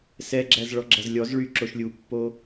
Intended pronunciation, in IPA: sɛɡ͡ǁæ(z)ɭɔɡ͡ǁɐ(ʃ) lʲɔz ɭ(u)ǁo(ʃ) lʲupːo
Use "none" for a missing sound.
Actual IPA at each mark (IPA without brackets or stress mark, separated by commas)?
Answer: z, z, y, ʃ